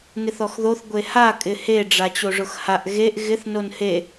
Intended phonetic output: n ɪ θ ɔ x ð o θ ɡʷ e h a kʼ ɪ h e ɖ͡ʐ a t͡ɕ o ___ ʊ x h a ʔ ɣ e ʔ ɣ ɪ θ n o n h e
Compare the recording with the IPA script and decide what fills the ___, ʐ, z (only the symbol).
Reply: ʐ